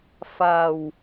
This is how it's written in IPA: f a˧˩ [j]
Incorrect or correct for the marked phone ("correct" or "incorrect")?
incorrect